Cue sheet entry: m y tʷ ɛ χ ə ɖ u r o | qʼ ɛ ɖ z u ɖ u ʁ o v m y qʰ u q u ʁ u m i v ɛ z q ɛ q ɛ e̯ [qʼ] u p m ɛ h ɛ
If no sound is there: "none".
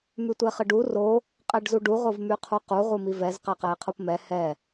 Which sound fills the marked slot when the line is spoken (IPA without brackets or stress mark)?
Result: qʰ